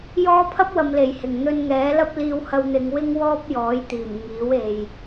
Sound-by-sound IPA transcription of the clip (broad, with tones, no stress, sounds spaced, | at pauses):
j ɔː˥ pʰ ɐ˥ p̚ w ɐ˨ m l e˨˩ j h ɪ˨˩ ŋ n̪ ɵ˧ n ŋ ɛː˨˥ l ɐ˥ p̚ l iː˧ w h ɐ˧ w n̪ ɪ˨˧ ŋ w ɪ˥ ŋ w ɔː˥ p̚ j ɔː˨˥ j t̪ iː˨˩ m ŋ iː˨˥ w e˨ j